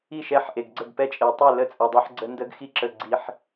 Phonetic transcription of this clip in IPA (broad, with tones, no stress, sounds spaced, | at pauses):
i˥˩ ʃ ɛ˧˥ ħ ʔ e˨˩ ɡ ɡ͡ǀ ə˥˩ ɡ p ɛ˧˥ t͡ʃʼ e˨˩ tˤ e˥˩ l ə˥˩ t͡sʼ ɛ˨˩ dˤ e˧˥ ħ ɡ͡ǀ ə˧˥ n d ə˧˥ ɡ x i˧˥ ǁ ə˨˩ ɡ͡ǀ i˨˩ ħ